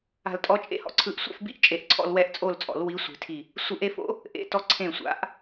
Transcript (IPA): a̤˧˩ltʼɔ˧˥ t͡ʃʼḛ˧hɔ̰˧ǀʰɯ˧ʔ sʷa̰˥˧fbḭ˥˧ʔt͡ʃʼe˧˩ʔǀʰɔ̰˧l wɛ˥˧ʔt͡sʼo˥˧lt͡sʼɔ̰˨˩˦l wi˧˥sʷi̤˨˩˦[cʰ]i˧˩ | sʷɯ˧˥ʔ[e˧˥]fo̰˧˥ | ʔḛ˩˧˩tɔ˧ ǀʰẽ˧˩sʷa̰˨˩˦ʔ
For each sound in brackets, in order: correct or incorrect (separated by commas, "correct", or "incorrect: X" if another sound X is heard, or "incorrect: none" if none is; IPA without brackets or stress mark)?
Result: incorrect: tʰ, correct